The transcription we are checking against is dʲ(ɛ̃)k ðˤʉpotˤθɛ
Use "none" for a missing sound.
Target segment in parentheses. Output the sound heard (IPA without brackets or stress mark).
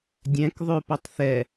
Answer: ɛ̃